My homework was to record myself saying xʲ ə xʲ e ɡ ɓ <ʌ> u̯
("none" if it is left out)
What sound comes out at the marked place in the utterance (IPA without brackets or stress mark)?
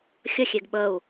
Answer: ə